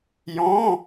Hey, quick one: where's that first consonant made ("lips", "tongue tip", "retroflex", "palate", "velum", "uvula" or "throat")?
palate